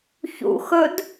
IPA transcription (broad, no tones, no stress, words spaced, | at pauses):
çṵxɵd